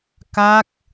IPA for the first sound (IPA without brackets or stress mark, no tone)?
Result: k